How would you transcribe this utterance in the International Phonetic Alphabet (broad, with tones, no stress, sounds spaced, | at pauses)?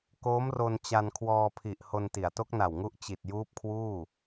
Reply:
k oː˦˥ m r o˧ n t͡ɕ a˧ n kʰ w ɔː˧ pʰ i˨˩ ʔ h o˧ n t i˩˦ a̯ t o˦˥ k̚ n a˨˩ w ŋ u˦˥ ʔ t͡ɕ i˨˩ t̚ j uː˦˥ p̚ kʰ w uː˥˩